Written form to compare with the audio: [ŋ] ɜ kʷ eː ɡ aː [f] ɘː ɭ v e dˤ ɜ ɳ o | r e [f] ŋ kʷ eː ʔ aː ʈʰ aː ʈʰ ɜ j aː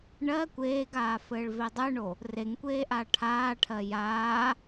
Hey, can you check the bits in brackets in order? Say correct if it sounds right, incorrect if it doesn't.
incorrect, correct, incorrect

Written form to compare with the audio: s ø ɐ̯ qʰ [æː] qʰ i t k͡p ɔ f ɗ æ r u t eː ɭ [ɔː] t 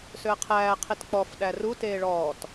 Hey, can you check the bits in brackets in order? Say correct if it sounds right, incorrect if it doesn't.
correct, correct

